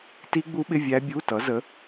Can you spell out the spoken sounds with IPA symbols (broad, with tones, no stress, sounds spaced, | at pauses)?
t i˦˥ ɡ͡b u˦˥ ɓ ɪ˧˥˧ vʲ æ˦˥ bʲ u˧˥˧ t ʌ˨˥ z ə˨˥